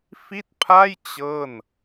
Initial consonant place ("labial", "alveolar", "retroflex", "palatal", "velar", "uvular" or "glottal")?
labial